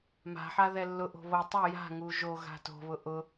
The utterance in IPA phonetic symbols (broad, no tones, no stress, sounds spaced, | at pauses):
m a̤ ħ a ð ɛ lː ʊ ʔ o̤ β o tˤ u j a̤ ŋ u ʒ o ɣ a̤ t o̤ β ʊ ʔ ʊ